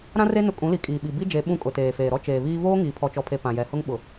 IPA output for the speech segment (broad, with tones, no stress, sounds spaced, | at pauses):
ɾ ã˦ r e˦ n ʊ˦ kʼ ũ˨˦ l i˨ kʼ iː˨ ɓ i˨ b i˦ d͡ʒ e˨˦ ɓ ũ˦ kʼ ʊ˨ t eː˨ f eː˨ ɾ ɔ˦ t͡ʃ eː˨ β iː˦ v oː˦ ŋ iː˨ pʰ ɔ˨ t͡ʃ ɔ˨ pʰ e˨ p ã˨ j ɛ˨ h ʊ˦ ŋ ɓ ʊ˨